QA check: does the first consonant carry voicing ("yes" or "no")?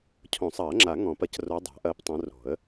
no